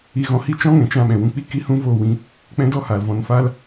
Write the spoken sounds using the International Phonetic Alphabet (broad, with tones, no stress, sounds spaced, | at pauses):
i˧ ɣ ɔ̃˧ h i˦ t͡ʃ ɔ̃˦ ŋ ɛ̃˨ t͡ʃ ã˦˨ ɓ ɛ̃˨ w ũ˧ k͡p i˦ k i˦ h ũ˦ v o˦˨ w ĩ˧ | k͡p ɛ̃˧ d ɔ˦˨ h aː˨ l v ɔ̃˨˦ n f aː˦ l